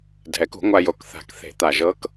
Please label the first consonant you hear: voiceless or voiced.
voiced